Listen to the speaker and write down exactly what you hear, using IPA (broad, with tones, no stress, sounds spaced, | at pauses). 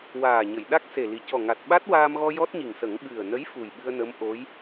w aː˨˩ ɲ ə˨˩˨ j ɗ a˦˥ k̚ s e˨˩ l i˨˩ c ɔ˨˩ ŋ a˨˩ t̚ ɓ a˦˥ t̚ w aː˧ m ɣ ɔ˧ j ɔ˦˥ t̚ ɲ i˨˩ ŋ s ə˨˩˦ ŋ ɓ ɨ˨˩ ə̯ n ə˧˥ j f u˨˩ j ɓ ɨ˧ ə̯ n ə˧˥ m ʔ o˧˥ j